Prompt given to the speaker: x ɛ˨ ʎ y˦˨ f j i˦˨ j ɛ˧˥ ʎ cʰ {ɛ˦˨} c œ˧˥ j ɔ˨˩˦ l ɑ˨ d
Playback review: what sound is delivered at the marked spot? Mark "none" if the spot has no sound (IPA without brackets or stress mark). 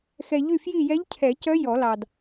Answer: ɛ˨˩˦